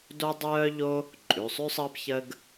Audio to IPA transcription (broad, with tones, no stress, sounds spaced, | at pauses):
d o˥ dˤ œː˥ ʎ o˥ | ǃʼ ʉ˩˧˩ sˤ ʉ˥ sˤ əː˥ b ç ə˥ ɡ